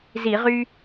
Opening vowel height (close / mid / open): close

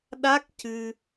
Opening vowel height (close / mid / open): open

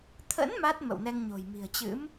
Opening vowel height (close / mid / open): mid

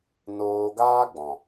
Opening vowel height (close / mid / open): mid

